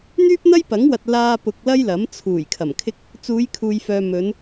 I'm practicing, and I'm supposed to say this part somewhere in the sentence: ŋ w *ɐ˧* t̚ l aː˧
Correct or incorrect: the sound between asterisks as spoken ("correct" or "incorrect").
incorrect